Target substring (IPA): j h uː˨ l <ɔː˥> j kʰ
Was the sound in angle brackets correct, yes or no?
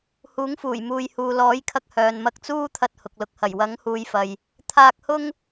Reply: no